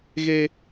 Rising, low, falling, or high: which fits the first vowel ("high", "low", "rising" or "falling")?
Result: high